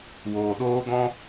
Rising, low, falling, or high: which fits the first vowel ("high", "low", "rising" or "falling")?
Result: low